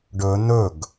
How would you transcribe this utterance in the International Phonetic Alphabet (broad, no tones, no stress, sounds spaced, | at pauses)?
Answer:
ɖ ɵ n̪ ɵ ɡ